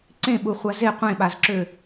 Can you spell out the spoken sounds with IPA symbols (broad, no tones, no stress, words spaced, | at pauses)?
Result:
ǀẽɓuχʷa ze qʷẽɓazǁø